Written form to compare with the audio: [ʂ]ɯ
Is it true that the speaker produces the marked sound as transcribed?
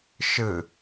no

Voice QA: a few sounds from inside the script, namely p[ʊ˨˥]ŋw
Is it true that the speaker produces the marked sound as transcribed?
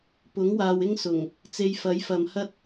yes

